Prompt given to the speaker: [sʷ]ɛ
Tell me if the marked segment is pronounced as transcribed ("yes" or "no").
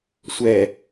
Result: yes